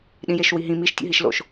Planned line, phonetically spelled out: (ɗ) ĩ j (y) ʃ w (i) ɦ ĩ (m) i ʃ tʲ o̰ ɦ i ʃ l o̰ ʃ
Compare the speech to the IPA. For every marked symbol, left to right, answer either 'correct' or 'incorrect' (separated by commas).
correct, incorrect, correct, correct